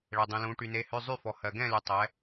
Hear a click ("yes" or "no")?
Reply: no